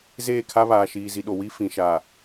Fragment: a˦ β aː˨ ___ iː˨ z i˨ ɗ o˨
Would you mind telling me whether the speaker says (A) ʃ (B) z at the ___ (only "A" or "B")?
A